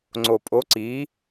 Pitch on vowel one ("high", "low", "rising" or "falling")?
low